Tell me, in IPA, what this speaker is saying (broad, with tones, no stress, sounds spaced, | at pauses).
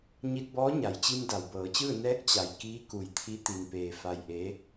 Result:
ɲ i˧ t̚ b ɔː˧˥ ɲ a˩ j t͡ɕ i˧ m d a˩ w b ɤː˩˧ t͡ɕ ɯː˥˨ n ɛː˧˥ k̚ t͡ɕ a˩ j k iː˧˥ k u˧˩ j t̪ʰ i˧˥ t̪ i˧ n p eː˧ f a˧ j ʔ e˧˥